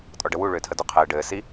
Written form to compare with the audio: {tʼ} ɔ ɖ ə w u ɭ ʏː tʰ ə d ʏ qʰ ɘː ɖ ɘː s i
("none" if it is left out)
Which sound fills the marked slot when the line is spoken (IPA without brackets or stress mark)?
tʼ